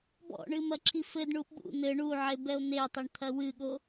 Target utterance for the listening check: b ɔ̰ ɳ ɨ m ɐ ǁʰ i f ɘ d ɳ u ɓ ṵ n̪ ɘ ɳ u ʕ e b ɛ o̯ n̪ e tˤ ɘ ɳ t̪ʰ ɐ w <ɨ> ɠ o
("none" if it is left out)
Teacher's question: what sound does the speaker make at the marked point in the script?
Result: ɨ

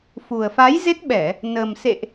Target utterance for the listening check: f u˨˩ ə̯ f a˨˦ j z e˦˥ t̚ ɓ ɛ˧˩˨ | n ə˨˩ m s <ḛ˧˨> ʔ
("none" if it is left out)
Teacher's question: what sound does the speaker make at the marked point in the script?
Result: ḛ˧˨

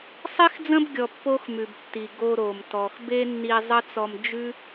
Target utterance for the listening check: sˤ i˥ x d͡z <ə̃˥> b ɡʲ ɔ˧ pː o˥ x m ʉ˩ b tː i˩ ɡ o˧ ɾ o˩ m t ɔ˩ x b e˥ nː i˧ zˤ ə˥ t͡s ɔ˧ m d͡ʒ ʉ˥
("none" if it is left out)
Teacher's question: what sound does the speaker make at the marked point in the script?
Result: ə̃˥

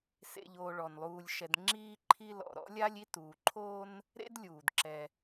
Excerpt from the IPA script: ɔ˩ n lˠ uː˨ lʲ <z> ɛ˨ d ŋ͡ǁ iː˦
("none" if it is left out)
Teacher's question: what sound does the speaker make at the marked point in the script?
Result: ʃ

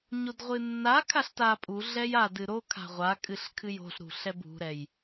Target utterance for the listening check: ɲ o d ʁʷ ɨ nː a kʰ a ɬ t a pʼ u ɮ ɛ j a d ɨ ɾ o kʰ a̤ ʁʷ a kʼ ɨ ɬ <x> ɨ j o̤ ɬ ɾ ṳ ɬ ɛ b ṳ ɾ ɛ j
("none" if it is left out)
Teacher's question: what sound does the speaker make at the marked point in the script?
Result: kʰ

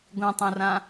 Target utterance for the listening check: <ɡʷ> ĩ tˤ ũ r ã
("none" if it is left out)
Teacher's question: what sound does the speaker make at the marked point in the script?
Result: ɡʷ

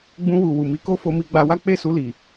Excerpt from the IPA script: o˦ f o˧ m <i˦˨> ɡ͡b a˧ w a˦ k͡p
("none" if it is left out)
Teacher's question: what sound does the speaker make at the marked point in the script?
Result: i˧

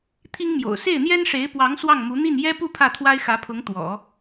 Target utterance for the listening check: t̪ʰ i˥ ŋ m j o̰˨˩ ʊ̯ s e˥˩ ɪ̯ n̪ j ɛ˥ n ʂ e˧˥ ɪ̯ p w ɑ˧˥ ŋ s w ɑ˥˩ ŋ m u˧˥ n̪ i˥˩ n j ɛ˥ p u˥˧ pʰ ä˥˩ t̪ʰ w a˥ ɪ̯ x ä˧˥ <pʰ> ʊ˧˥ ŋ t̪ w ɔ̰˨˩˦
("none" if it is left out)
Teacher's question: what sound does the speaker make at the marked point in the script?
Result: pʰ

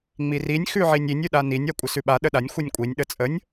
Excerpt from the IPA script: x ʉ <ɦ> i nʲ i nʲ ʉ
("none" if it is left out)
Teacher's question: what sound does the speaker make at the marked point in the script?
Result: ʕ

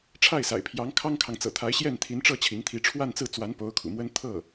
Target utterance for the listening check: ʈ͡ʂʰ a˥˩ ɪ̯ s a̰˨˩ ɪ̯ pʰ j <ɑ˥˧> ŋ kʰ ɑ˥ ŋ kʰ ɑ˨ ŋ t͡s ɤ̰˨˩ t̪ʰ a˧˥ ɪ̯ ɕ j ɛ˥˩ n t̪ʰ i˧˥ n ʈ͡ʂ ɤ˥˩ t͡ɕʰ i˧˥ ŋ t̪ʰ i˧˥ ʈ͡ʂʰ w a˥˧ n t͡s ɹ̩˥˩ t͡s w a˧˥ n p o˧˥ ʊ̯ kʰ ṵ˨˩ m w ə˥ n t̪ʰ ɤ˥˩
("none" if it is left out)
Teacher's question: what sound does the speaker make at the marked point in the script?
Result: ɑ˧˥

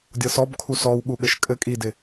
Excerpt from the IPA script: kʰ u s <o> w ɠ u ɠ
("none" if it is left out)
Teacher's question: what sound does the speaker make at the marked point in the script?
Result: ɔ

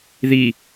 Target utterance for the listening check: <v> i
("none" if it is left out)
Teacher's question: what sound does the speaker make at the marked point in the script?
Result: ð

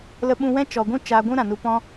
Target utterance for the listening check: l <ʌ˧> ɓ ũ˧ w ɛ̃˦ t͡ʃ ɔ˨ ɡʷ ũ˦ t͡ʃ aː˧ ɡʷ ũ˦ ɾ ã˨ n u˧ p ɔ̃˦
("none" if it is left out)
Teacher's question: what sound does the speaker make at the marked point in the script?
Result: ə˧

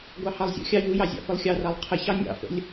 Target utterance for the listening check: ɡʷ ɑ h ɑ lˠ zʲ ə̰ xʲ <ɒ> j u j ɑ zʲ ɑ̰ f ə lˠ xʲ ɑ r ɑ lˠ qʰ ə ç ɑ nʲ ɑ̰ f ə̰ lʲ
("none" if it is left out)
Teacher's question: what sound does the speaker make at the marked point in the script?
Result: ɑ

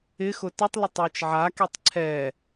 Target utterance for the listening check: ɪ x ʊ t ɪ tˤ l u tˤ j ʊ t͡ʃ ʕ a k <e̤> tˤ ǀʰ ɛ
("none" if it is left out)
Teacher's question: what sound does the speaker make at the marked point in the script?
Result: e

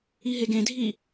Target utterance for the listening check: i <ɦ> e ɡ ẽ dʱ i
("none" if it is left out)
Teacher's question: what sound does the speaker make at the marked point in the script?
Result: ɦ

